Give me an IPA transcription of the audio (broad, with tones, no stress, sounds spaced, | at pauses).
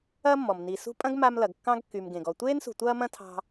ɐː˥ mː ɔ˩ m n i˩ s ṳ˦ pʼ ɐ̃˥ ɡ m a˦ m l ɐ˩ ɡ kː ɑ̃˥ ɡ kː y˩ m ɡ ẽ˩ ɡ ɔ˨ tʷ eː˥ n s ṳ˨ tʷ ɐː˦ m ɐ̃˦ tʰ ɑ̤˦